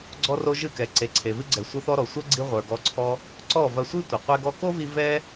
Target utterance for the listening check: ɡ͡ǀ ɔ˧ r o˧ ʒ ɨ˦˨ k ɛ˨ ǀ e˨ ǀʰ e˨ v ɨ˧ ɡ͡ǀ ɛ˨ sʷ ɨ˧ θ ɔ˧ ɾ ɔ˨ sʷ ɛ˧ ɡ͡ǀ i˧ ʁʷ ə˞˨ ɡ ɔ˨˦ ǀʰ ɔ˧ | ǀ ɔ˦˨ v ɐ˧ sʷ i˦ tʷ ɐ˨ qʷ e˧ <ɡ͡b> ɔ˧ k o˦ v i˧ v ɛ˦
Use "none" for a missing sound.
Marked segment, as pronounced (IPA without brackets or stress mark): ɡ